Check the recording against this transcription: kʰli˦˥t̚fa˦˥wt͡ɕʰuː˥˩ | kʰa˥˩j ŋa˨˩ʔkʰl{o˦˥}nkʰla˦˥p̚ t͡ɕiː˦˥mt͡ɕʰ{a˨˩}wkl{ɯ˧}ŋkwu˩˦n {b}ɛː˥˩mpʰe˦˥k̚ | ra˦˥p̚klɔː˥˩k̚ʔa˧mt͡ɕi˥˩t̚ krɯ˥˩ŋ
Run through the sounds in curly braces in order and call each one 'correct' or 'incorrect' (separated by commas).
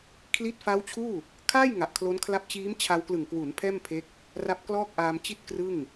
correct, incorrect, incorrect, incorrect